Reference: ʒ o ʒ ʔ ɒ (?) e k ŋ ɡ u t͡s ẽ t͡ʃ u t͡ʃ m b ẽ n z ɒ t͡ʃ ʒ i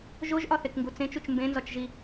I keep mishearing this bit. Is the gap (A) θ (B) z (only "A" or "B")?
A